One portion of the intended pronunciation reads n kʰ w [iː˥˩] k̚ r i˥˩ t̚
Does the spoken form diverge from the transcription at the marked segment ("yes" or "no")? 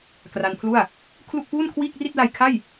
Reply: no